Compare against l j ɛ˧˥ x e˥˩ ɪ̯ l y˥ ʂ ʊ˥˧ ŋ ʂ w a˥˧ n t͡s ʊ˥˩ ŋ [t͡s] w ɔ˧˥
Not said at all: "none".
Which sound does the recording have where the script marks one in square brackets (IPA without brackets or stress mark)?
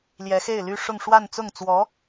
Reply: t͡s